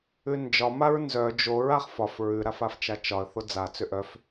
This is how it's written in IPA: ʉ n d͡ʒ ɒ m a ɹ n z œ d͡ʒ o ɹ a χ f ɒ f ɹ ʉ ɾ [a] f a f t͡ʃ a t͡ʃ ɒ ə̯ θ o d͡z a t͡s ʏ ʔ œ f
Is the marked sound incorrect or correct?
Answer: correct